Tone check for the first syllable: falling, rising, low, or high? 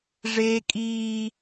high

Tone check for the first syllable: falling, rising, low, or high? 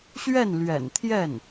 falling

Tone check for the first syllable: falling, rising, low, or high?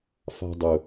high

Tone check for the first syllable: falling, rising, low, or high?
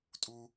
high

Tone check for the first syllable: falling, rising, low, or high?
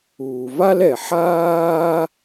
low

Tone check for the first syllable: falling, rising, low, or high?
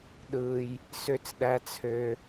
low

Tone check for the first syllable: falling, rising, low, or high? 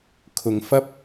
low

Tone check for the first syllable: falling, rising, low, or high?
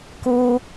high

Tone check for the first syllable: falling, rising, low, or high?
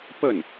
falling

